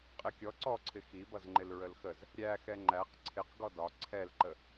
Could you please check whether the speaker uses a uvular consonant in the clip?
yes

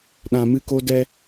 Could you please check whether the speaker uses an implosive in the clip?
yes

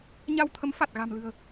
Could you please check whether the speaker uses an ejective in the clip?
no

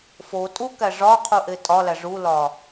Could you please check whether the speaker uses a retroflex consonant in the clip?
yes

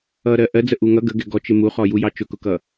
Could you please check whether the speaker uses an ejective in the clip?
no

